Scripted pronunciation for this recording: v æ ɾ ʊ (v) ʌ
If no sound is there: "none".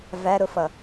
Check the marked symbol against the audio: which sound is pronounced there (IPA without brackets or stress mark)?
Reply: f